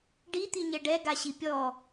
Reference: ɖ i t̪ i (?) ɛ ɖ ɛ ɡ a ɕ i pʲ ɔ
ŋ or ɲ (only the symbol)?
ɲ